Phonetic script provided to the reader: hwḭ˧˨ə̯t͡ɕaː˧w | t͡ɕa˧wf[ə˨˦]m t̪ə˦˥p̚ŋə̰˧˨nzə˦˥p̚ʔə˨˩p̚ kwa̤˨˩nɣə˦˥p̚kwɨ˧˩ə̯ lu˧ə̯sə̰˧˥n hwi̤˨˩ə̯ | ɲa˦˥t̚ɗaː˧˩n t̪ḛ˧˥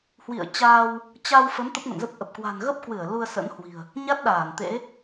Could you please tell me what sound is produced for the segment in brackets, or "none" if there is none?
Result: ə˨˦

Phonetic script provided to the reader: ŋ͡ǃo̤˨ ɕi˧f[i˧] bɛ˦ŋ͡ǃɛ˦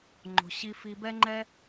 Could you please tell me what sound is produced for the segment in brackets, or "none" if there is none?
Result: i˧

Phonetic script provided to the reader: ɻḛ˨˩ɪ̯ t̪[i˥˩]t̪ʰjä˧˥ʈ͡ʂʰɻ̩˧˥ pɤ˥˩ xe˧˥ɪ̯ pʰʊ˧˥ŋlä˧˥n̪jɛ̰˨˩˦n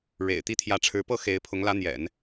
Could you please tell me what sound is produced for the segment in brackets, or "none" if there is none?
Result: i˥˩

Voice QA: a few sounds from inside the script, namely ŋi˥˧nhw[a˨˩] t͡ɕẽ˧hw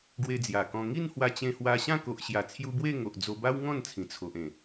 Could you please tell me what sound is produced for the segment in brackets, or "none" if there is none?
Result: a˧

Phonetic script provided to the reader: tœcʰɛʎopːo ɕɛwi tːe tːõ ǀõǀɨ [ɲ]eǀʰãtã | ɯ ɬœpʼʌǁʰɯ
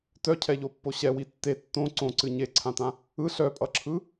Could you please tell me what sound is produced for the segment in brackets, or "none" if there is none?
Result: ɲ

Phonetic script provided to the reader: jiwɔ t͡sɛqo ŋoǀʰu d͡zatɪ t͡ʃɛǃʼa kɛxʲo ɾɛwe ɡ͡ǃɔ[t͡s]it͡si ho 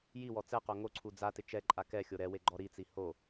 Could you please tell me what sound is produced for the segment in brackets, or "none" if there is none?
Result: ɾ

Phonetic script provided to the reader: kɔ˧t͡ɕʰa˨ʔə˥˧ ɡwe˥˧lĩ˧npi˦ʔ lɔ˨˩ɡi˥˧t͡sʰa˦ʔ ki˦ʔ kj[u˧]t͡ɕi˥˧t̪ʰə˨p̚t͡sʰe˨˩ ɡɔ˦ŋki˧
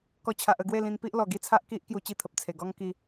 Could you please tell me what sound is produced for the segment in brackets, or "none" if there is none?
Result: u˧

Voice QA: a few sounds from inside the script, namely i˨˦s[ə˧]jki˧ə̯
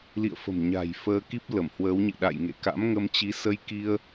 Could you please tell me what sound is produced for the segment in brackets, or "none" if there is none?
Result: ə˧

